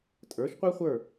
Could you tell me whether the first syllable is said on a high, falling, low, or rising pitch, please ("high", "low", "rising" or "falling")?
rising